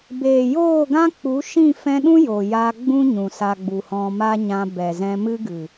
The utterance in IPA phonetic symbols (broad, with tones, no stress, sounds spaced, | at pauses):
b eː˨ j oː˦˨ ɡ ã˦ k͡p u˨˦ ʃ ĩ˦˨ f ɛ̃˧ ɗ ũ˦ j o˨ j a˧ ɡ͡b ũ˦ ɲ ũ˨ s a˧ ɡ͡b u˨ h ɔ̃˧ m a˦ ɲ ã˧ b ɛ˨ z ɛ̃˧ m ɨ˦ ɡ ɨ˨